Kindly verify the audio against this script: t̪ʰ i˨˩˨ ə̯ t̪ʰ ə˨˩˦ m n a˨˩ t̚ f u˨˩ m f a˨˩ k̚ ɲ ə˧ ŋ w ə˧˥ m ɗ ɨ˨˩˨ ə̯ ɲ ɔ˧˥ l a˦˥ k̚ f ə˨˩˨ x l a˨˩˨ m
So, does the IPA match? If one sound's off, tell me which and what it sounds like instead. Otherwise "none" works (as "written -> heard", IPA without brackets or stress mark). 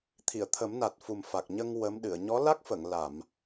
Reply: x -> ŋ